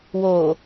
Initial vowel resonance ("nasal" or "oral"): oral